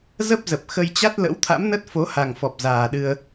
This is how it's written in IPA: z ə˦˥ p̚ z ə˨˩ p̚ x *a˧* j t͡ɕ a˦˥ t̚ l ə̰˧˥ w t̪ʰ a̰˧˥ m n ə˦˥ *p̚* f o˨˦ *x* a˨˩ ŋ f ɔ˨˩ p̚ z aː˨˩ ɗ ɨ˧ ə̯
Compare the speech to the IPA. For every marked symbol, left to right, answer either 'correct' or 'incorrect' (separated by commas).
incorrect, incorrect, incorrect